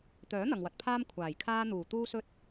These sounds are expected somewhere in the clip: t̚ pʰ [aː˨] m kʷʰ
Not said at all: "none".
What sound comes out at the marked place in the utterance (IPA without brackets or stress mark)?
aː˧